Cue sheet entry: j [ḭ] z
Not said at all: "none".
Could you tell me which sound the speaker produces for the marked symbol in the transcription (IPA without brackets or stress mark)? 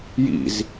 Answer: ḭ